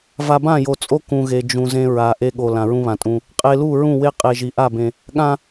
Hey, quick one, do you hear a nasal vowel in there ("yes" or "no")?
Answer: yes